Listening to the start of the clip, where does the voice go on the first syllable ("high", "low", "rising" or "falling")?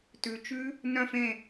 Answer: low